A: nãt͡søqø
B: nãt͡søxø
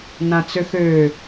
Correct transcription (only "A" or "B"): B